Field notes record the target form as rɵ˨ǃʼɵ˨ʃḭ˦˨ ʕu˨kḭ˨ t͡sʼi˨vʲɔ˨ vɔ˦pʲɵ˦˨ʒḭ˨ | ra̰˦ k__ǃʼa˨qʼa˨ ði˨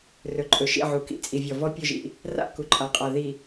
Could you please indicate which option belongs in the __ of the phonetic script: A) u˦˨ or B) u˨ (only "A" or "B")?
B